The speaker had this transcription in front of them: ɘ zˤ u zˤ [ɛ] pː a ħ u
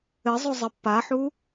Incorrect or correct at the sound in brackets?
incorrect: ə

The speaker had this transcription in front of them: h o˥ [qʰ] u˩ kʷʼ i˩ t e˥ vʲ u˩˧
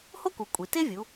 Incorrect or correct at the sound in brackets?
incorrect: k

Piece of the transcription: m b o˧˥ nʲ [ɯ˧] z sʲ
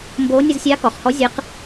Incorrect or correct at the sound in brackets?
correct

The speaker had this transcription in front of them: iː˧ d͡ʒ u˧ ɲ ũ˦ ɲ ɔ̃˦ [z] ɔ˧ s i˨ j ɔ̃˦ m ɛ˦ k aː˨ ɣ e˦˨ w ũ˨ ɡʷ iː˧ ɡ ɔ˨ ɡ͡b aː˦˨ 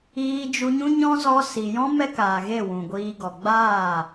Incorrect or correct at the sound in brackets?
correct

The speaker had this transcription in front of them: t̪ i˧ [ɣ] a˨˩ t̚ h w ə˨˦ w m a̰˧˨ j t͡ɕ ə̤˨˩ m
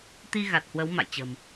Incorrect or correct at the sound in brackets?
correct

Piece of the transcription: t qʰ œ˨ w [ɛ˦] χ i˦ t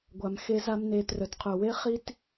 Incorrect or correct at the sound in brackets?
incorrect: e˦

